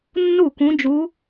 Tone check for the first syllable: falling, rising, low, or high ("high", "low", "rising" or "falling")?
falling